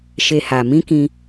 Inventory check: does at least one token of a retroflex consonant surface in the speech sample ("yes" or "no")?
no